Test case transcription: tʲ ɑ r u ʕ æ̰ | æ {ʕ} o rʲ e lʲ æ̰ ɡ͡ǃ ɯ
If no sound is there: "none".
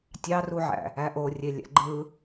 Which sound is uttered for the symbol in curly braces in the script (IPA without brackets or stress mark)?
ʔ